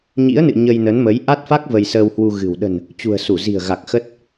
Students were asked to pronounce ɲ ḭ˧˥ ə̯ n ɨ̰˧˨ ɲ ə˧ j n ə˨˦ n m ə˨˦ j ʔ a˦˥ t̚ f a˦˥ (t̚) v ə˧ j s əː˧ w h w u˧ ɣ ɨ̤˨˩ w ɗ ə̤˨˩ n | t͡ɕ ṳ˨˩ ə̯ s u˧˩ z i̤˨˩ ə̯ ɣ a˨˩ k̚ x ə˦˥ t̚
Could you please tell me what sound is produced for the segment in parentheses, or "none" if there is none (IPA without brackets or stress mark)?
k̚